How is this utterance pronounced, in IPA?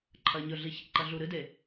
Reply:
ǃʰ ɐ ɲ ɵ ɮ i ç ḛ ǃ ɐ ɮ u ɾ ɨ d e

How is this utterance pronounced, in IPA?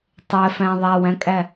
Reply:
tˤ ɛ f æ̃ ðˤ æ w æ̃ kʼ æ

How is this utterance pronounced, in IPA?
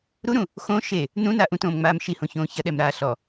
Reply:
ɾ u ɾ ũ | x õ ʃ e | n ũ n a ʔ ũ t õː m ŋ͡m aː m ʃ i h õ ç õː ç ɐ ɗ ɛ m ɾ aː ɬ ɔ

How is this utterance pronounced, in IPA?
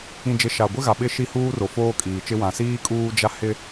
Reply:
ĩ˨ d͡ʒ ɪ˨ ʃ a˨ ɡʷ ɪ˦ ɣ a˨ ɓ ɪ˦ ʃ i˦ h uː˦ r o˨ f oː˦ kʼ iː˨ t͡ʃ ɪ˦ w ã˨ s iː˦ kʼ uː˦ d͡ʒ a˦ h ɪ˦

